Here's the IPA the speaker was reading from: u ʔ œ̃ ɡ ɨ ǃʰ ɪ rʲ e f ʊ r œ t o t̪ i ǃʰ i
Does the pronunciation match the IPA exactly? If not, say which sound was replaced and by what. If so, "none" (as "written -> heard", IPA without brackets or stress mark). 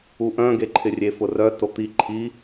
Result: ɨ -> e